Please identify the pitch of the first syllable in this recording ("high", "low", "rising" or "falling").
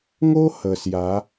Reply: high